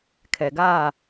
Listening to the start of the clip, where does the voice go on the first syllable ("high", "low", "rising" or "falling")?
low